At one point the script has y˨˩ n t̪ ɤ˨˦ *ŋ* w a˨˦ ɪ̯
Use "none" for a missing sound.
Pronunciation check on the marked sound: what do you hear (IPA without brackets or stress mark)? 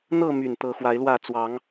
x